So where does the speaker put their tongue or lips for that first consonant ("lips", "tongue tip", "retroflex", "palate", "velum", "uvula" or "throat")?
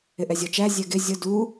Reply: throat